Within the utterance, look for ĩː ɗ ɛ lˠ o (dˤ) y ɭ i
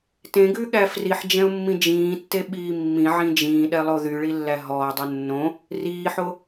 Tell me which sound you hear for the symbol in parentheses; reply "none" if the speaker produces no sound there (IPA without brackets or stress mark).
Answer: ð